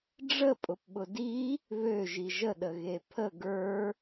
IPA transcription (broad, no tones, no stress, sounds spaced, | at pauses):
ɖ͡ʐ ə pʼ ʊ p ɓ ʊ d i | β ø ʒ i ʒ ə ɗ ə ɣ e pʰ ə ɡ ə˞